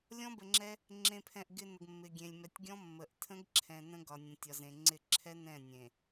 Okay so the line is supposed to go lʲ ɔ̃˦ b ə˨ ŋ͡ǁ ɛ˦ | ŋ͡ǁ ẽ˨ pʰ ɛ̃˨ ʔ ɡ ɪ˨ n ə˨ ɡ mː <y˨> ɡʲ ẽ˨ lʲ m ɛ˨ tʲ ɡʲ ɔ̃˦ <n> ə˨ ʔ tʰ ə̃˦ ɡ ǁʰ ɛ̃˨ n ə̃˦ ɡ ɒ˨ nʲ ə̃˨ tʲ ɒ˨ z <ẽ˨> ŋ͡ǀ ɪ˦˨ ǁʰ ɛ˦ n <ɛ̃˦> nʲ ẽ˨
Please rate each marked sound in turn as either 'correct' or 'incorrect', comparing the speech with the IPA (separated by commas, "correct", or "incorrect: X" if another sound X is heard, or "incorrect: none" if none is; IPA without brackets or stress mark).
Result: incorrect: ɪ˨, incorrect: mː, correct, incorrect: ɛ̃˦˨